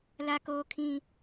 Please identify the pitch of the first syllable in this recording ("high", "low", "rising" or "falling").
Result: high